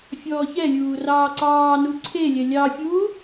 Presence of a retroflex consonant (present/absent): absent